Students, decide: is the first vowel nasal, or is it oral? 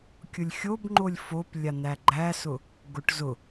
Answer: oral